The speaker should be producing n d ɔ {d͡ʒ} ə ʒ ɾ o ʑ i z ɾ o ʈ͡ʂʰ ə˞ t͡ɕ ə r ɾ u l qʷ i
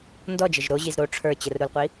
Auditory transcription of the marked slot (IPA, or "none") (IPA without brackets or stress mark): d͡ʒ